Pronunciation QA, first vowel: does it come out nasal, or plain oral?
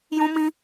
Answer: nasal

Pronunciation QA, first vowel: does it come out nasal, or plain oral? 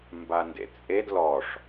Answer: oral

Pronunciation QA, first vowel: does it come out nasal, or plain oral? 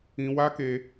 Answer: nasal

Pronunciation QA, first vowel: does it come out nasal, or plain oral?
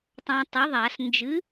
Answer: nasal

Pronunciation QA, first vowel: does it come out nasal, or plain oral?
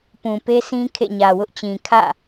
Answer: nasal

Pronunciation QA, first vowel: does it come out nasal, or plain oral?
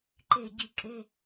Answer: oral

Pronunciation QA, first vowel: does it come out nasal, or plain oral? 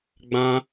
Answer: nasal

